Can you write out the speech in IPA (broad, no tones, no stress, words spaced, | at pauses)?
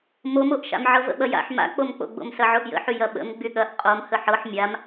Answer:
momoʔʃa̰m ʕɤvə̰ɓɐja̰ħ ma̰k͡pomk͡po̰ɡ͡bo̰m sɐʕoʔjə̰ħy jɐɓə̰m ɡ͡byɠɐʔ qʼom həħɤħ mʲam